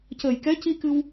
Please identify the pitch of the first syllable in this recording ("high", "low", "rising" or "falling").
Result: low